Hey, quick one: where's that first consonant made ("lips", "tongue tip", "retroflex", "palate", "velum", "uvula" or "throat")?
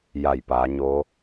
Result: palate